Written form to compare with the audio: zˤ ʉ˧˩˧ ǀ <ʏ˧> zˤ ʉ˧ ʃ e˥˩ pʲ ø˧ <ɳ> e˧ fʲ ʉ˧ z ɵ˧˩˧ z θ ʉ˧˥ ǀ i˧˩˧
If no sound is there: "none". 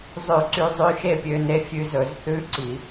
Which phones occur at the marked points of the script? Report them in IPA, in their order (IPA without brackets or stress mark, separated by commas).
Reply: y˧, n